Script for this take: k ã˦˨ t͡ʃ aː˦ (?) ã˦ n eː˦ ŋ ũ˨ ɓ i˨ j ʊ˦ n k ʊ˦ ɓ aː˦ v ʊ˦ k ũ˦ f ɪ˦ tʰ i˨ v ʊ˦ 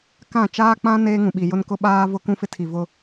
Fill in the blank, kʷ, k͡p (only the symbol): k͡p